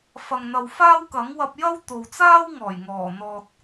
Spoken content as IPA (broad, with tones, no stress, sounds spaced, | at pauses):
f ɐ˨ ŋ n̪ ɐ˨ w f aː˥ w k ɐ˨˥ ŋ w ɐ˧ p̚ j ɐ˥ w t̪ o˨ w t͡s aː˥ w ŋ ɔː˨˩ j ŋ ɔː˨˩ n̪ ɔː˨ t̚